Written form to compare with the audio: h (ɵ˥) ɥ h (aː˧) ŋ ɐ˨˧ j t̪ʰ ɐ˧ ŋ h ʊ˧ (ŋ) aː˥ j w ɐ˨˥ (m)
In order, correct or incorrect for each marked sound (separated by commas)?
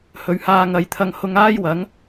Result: incorrect, correct, correct, incorrect